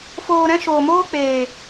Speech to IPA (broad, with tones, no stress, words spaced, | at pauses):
foː˧ɾɛ̃˦ ʃoː˨moː˦k͡peː˨